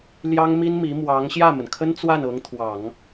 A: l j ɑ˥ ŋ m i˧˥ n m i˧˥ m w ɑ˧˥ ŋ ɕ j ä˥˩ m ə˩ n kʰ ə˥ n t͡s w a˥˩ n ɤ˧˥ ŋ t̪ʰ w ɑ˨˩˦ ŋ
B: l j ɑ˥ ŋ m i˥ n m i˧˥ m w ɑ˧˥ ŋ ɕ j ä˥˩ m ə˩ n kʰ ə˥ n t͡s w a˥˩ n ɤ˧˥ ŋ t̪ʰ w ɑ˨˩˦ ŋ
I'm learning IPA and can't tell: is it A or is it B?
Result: B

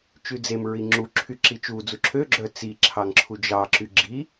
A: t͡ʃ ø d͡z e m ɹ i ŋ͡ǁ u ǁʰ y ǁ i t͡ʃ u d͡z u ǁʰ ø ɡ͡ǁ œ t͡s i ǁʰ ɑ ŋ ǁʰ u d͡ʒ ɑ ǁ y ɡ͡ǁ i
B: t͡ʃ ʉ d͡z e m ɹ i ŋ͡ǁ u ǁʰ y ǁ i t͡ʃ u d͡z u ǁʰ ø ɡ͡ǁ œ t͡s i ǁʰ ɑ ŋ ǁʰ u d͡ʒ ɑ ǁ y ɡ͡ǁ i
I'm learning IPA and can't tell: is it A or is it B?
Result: B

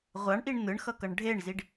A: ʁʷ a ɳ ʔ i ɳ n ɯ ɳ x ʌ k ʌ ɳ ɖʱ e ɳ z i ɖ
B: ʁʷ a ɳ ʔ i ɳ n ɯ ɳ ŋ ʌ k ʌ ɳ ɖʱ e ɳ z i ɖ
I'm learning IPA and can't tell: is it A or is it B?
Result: A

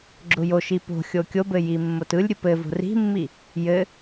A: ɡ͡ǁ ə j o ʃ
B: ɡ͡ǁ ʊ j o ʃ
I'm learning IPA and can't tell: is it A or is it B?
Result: B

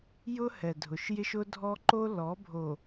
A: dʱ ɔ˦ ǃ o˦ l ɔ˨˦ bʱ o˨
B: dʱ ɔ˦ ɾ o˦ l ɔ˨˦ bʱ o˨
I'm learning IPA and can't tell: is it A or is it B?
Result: A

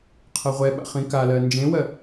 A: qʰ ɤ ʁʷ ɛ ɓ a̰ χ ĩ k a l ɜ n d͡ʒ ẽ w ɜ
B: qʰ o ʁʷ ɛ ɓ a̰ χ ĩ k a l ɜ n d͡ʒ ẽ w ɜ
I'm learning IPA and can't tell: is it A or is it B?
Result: A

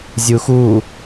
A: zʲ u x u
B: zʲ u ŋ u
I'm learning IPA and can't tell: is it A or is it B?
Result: A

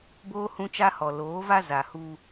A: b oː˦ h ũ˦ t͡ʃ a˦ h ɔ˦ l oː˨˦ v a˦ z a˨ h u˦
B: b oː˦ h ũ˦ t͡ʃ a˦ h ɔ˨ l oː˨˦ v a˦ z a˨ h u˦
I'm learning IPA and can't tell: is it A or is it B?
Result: B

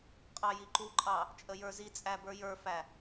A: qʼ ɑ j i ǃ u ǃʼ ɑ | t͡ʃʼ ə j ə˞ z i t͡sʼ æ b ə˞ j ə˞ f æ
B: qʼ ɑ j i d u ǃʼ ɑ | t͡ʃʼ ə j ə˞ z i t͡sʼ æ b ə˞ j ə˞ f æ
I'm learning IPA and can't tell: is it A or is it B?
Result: A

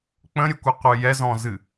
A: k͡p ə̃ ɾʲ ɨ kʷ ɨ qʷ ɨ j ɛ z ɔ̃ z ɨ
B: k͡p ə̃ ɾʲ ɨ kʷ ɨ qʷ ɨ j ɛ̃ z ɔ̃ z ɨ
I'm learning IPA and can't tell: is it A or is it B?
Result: A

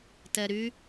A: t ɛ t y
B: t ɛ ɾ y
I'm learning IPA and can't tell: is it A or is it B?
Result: B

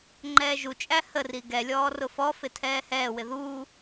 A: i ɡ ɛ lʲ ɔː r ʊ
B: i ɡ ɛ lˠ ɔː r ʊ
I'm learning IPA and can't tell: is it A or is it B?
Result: A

